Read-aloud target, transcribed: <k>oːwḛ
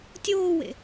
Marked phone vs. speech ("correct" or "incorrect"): incorrect